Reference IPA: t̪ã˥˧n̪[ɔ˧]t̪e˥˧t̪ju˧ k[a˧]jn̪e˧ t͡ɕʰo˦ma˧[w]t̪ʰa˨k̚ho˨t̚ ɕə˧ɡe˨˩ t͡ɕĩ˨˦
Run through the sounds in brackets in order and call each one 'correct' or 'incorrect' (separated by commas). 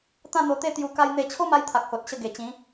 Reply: incorrect, correct, incorrect